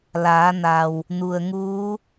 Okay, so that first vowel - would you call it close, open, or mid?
open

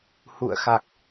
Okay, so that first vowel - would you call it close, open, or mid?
close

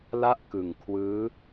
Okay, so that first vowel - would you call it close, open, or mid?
open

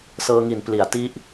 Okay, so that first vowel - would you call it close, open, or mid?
mid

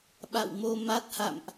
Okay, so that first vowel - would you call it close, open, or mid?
open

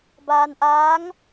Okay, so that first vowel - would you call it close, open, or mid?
open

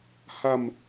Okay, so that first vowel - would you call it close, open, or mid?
open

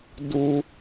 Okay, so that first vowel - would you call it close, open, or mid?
close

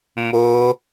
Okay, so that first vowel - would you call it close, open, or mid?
mid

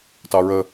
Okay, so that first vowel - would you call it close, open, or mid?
open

